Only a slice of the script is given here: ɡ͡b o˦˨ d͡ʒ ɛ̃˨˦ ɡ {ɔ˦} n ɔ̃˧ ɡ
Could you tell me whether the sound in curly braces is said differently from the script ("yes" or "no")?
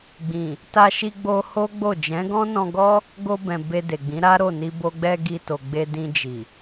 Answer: yes